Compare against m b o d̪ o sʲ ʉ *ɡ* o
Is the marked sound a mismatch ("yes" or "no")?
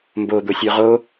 yes